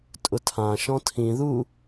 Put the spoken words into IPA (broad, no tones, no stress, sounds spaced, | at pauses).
tʼ ʊ tʰ ã ʃ ɔ̃ tʰ ĩ ð u